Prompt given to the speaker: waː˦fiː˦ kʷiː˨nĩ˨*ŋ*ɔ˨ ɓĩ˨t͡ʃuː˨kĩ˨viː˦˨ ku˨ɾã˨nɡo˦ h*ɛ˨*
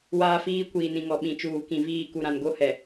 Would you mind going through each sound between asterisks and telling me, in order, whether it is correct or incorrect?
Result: correct, correct

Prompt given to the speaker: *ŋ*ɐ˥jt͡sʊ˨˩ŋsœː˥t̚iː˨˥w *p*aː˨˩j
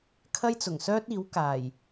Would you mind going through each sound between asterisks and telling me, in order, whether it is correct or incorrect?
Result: incorrect, incorrect

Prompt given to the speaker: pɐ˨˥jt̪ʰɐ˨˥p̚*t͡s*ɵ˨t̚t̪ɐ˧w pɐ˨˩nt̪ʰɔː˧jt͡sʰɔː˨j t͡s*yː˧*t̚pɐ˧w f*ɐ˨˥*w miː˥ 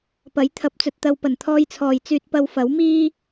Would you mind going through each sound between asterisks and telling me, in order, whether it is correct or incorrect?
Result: correct, correct, correct

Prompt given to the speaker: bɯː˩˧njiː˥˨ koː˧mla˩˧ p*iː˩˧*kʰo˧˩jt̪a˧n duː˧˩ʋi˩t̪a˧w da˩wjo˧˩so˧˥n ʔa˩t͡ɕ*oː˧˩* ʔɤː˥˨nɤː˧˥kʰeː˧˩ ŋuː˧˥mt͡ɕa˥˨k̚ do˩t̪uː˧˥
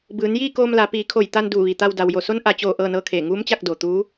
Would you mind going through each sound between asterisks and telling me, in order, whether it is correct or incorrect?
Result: correct, correct

